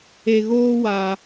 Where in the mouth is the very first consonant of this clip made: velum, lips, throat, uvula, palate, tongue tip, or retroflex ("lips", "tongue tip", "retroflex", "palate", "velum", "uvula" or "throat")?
velum